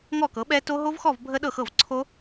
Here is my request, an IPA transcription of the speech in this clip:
ŋ ɔ˥˨ k ɤ˩˥ ɓ ɛ˦˥ t o˦˥ ɦ o˦˥ v x ɔ˥˨ v bʱ ə˦˥ ɗ ɤ˥˨ x ɤ˥˨ v ǀʰ o˦˥

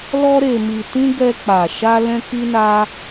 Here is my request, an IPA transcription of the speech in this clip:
l ɔ˧ ɾ e˨ m i˨ t ĩ˧ ɡ ɛ˧ k͡p a˨ ʃ a˧ l ɛ̃˧ k i˧ n a˧

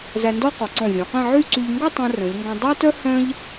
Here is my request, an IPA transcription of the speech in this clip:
z æ˧ n d ɔ˥˧ q ɔ˩˧ ǀ ɔ̃˧˩ vʲ ɔ̃˩˧ q æ̃˥˧ ʕ y˥˧ ǀ y˧ ʎ ŋ ɡ o˥˧ tˤ œ̃˧ r œ̃˩˧ ʎ ŋ ɡ õ˧ dˤ æ˥ t œ˥ h œ̃˥ ʎ

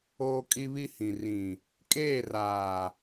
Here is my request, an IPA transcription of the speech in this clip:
oː˦ kʼ i˦ β i˦ h ĩ˨ r ĩ˨ | kʼ eː˦˨ r aː˨

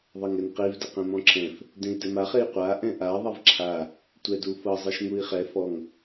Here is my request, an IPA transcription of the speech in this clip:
ðˤ ɤ ŋ ɛ n q i v d ɛ q ẽ m ɔ̃ ǁʰ ɛ̃ f | d ẽ i̯ d ɛ m a χ e i̯ qʷ a ʔ ɛ̃ ʔ a ðˤ ɛ v ǁʰ a | tʷ ɛ d u f ɤ zˤ ɤ ʃ ŋ u i̯ χ ɛ f ɔ ŋ

